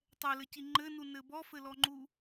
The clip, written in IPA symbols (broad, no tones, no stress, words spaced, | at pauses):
tˤɛlɘci ŋ͡ǃɘnunɘ bɔfɘlɔŋ͡ǃu